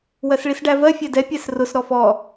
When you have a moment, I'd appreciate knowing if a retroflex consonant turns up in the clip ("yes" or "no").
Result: yes